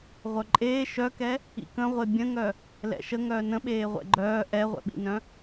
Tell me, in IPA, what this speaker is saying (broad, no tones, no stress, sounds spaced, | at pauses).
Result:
ʁʷ œ ǃʼ eː ʃ œ k ɛ | ḭ k ə̃ ʁʷ e bʲ ə̃ ŋ œ | l ɛ̰ ʃ ə ŋ œː n ə̃ ɓ eː ʁʷ ɛ̰ ɡ͡ǃ œː ʔ ɛ ʁʷ ɛ̰ ɓ ḭ n œ̃